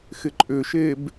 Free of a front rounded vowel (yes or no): no